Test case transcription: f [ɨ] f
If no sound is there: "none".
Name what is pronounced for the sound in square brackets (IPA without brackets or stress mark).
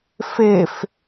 e